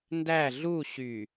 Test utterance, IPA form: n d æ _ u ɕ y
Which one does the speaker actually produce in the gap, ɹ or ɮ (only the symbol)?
ɮ